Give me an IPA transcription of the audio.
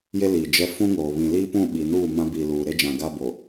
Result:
j e˦ l iː˨ d͡ʒ ɛ˦ f ũ˦ ŋ oː˨ β ĩ˨ l iː˦ p ũ˦˨ ɓ i˨ n uː˦˨ m ã˦ b iː˨ l uː˨ ɾ e˦ d͡ʒ ã˨ ɡ a˦ b o˨

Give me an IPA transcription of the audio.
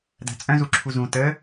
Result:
d æ̤ t͡sʼ œ̃ z u ǁʰ u z ũ t ə

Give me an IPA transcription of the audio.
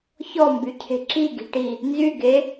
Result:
ç ɔ m b y cʰ e̤ ǁ i ɡ i̤ ʈ i | n z y ɡ e

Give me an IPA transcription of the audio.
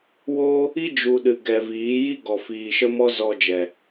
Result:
w oː˦ | i˦ d͡ʒ u˨ ɗ ɨ˨ ɡ ɛ˨ v iː˨˦ j i˦ ɡ ɔ˨ f iː˨ ʃ ə˦ m ɔ˦ z ɔ˧ d͡ʒ ɛ˨

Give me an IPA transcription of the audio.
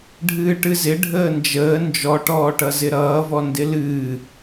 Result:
ɖʱ ɨː ʈ ɨ z ɪ ɖʱ əː n d͡ʒ əː n d͡ʒ ɔ ʈ ɔː ʈ ʌ z ɪ ɾ ʌː v ɔ n d ɪ l ɨː

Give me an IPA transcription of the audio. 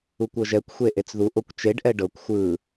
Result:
u kʷ ɤ ʒ ɛ kʷ xʷ e ʔ e t͡s ð u ʔ o kʷ t͡ʃ e ɖ ʔ ɛ ɖ ɤ kʷ xʷ ɯ

